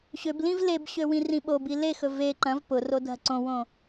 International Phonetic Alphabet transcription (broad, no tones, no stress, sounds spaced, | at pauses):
ɕ ø b l ĩ v l e b ɕ ø w ĩ r ĩ ɓ o b i l e x ɵ v e ǃ ɐ̃ v p ʊ r o dʱ ɐ ǀ õ w õ